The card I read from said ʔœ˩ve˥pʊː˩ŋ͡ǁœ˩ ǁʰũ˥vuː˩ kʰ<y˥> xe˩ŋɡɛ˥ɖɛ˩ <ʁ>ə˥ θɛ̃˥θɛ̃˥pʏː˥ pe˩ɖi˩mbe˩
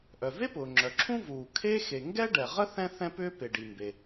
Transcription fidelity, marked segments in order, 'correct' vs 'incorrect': incorrect: e˥, correct

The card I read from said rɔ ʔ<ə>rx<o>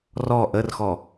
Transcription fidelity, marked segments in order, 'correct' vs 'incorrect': correct, incorrect: ɔ

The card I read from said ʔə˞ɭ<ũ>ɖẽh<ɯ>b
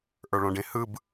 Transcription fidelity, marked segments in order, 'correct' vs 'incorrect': incorrect: õ, correct

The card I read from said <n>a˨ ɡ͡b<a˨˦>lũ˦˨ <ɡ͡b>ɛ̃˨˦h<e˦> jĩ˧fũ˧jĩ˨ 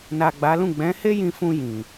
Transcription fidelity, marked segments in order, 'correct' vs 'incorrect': correct, correct, correct, correct

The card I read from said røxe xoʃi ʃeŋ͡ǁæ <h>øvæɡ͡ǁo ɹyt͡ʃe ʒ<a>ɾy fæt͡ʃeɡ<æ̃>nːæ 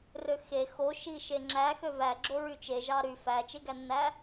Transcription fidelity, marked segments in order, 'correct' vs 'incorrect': incorrect: x, incorrect: ɑ, incorrect: æ

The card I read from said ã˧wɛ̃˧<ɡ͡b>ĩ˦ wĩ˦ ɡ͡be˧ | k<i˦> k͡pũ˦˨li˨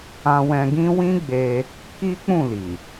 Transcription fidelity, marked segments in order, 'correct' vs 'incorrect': incorrect: ɡ, correct

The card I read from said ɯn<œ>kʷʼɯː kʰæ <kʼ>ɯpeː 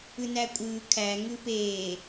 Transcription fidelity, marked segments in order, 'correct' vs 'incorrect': incorrect: æ, incorrect: ŋ

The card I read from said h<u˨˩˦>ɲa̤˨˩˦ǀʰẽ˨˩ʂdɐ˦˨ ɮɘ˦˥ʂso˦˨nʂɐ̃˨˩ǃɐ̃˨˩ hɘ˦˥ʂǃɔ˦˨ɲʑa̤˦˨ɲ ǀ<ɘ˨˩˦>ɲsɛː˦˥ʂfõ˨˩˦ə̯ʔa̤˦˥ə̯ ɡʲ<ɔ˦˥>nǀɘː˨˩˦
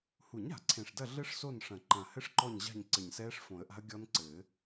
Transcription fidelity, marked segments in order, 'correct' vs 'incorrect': correct, incorrect: ɘ˨˩, correct

